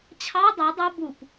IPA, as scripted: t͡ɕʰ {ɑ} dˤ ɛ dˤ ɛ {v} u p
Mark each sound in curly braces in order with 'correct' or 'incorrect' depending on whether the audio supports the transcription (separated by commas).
correct, incorrect